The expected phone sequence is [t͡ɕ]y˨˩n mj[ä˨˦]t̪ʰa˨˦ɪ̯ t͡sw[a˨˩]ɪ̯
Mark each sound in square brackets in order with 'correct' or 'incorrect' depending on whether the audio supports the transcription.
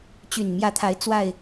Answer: correct, correct, correct

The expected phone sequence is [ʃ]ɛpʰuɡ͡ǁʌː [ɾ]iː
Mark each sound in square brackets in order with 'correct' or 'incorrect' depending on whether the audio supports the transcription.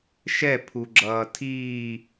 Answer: correct, incorrect

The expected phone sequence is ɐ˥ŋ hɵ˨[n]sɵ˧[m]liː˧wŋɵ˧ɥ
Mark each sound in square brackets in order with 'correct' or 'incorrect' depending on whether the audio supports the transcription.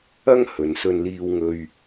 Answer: correct, incorrect

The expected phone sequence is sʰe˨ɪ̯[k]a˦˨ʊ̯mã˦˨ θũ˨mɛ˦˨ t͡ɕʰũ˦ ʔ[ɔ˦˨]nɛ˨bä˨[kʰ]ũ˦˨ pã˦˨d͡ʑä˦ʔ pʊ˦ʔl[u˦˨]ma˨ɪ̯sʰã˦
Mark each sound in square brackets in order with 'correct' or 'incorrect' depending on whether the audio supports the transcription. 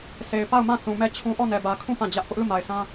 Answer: incorrect, correct, correct, correct

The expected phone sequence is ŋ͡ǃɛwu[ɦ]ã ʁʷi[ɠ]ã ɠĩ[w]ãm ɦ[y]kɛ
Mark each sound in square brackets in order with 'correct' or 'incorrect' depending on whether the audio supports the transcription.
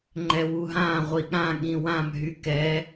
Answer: correct, correct, correct, correct

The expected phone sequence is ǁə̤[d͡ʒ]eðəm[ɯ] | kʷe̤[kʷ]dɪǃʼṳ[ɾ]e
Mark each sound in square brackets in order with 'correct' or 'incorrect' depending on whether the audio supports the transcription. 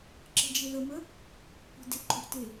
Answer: correct, incorrect, incorrect, incorrect

